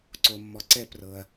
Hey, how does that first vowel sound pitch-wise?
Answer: low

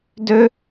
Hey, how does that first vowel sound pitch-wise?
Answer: high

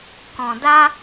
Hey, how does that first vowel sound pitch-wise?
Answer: low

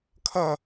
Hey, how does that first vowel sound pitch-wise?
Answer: falling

